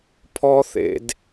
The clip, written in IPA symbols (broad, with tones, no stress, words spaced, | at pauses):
pʰɔ˥θḛ˦d